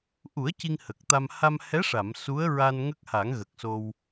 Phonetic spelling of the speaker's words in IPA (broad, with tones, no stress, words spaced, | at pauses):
ʔu˨˩˦ə̯ ci˧ŋhə˨˩k̚t̪a˧m ha˧mhɛ˧˥ʂa˨˩˨m su˧˥ə̯ɹa˧n ŋə˦˥k̚ha˨˩˦ŋ ɣə˨˩k̚so˧w